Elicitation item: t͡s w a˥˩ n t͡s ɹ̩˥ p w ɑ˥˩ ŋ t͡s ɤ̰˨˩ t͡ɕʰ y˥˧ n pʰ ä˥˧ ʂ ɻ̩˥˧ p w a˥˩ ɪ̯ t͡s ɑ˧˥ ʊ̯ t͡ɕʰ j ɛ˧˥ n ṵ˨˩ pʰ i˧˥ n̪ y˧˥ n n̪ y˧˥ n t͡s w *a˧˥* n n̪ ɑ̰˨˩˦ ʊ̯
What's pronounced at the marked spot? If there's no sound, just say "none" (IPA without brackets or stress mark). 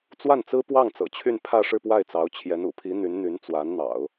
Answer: a˧˥